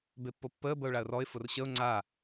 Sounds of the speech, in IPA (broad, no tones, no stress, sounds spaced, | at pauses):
b e pː o pː əː b ə ʊ̯ ɭ a ə̯ r ɔ ɪ̯ f ʊ r ɕ ə ʊ̯ ŋ͡ǀ a